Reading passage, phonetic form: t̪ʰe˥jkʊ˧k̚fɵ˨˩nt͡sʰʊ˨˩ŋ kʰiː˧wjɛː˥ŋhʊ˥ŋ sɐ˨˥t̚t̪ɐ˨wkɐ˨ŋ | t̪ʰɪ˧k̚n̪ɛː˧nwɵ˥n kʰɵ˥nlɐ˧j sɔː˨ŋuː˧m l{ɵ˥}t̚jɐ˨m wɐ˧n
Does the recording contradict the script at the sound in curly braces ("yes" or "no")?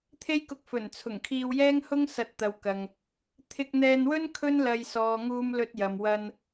yes